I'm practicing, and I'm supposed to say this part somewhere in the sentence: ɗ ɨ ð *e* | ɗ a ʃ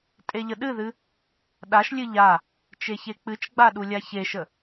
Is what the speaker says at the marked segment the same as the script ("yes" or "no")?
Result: no